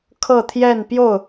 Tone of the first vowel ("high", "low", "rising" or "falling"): falling